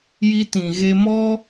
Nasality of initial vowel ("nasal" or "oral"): oral